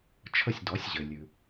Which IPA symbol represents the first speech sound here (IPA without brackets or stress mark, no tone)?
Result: t͡ʃʰ